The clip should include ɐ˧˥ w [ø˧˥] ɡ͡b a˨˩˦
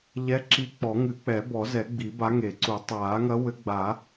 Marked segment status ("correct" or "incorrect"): incorrect